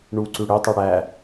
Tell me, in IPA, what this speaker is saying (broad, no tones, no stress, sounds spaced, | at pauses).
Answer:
ɳ u ǀ ʉ ɽ ø tˤ ɛ ɽ æ